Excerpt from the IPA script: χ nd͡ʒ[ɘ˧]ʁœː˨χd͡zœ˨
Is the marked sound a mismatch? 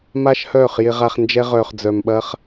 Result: yes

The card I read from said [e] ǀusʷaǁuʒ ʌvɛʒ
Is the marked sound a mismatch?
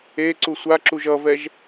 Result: no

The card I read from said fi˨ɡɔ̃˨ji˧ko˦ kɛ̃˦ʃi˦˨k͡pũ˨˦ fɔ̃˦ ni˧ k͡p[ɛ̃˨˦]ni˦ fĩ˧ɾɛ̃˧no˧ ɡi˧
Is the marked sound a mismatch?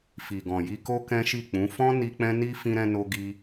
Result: yes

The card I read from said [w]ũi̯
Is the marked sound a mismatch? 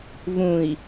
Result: yes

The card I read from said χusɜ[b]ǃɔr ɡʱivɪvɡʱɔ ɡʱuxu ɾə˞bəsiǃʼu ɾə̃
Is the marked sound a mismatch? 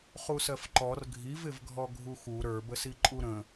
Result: yes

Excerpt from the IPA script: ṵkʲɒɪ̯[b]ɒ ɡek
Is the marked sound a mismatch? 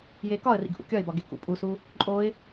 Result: no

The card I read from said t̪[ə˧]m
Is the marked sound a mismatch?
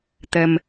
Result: no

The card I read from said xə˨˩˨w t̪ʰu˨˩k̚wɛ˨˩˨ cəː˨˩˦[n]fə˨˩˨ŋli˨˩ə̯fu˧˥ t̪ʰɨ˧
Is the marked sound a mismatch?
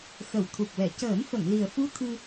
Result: no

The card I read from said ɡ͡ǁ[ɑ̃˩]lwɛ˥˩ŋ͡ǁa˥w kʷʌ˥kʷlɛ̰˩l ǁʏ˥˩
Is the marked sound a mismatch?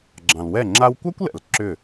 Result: no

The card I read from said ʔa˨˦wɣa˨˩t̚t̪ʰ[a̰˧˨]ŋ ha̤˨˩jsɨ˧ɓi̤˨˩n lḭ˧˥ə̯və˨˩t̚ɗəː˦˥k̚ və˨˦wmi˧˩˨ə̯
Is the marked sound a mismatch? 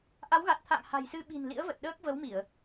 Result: no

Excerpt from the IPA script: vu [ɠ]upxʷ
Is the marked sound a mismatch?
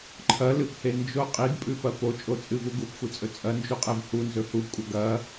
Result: yes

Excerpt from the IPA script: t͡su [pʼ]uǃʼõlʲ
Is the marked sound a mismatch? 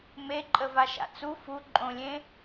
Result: yes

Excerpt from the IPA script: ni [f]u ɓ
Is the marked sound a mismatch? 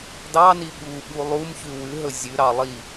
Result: yes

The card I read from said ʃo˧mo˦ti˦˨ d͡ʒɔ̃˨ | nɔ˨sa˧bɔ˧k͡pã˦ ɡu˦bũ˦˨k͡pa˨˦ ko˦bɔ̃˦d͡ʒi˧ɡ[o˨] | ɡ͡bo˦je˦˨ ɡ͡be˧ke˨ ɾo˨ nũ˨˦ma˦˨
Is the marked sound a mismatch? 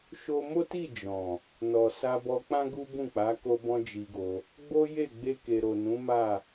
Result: yes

